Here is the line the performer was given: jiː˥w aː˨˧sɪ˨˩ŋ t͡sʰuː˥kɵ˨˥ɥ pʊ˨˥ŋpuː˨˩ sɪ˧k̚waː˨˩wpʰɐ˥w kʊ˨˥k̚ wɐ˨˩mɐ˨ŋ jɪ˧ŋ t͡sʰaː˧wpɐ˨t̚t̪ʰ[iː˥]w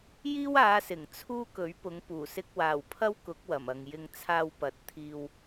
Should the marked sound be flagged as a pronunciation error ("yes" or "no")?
yes